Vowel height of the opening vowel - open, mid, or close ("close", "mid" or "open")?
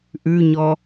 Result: close